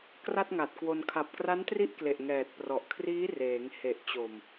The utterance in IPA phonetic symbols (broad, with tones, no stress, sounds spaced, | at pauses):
k r a˥˩ t̚ ŋ a˨˩ t̚ k w o˧ n kʰ a˨˩ p̚ k r a˦˥ n t r i˦˥ ʔ k l e˨˩ ʔ ŋ ɛː˨˩ t̚ p r ɔ˨˩ ʔ kʰ r iː˦˥ r eː˩˦ ŋ h e˨˩ ʔ t͡ɕ o˨˩ m